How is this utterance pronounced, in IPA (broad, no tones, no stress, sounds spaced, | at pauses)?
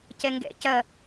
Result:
c ɛ ŋ ɡ ɛ̰ c ɐ